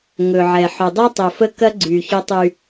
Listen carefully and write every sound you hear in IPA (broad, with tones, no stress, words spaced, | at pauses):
ŋɵ˨ʕɛ˨ ħɵ˨dˤɛ˦tˤɵ˨fə˦ kɐ˦ɡ͡ǀy˨ çɵ˦tˤy˦